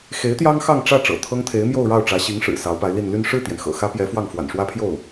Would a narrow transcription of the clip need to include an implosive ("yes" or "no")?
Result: no